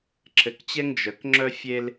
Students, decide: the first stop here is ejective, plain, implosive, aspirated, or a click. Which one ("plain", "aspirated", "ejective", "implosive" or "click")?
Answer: click